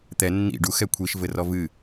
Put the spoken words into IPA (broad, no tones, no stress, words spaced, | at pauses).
t̪ɛ nːḭ ɖuxɛ kʷʰiʃvɘrɔ vɨ